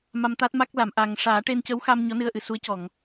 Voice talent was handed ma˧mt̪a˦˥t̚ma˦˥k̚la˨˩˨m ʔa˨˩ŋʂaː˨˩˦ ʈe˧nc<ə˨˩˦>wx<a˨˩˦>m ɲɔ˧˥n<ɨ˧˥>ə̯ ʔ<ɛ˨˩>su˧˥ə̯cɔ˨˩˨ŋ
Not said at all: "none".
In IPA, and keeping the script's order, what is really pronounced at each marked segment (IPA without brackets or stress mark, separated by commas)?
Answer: ə˧˥, a˧, ɨ˧, ɨ˨˩